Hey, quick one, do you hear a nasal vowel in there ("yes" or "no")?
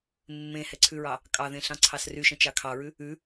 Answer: yes